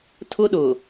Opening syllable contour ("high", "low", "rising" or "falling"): high